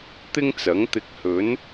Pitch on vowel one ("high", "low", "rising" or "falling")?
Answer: high